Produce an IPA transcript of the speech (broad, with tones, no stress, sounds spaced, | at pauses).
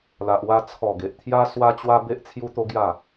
l a˨ ʔ w a˧ t͡sʰ ɔ˨˩ ɡ e˨ ʔ t̪ʰ j a˦ s w a˧ t͡ɕ w a˧ b e˦ ʔ t͡sʰ j u˦ t̪ o˦ ɡ j a˥˧